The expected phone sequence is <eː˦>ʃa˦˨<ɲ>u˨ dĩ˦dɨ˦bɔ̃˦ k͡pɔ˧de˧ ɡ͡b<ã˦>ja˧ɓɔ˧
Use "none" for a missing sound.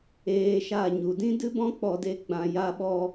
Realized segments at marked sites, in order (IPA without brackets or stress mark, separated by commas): eː˧, ɲ, ã˨